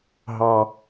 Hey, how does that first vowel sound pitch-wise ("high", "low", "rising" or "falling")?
low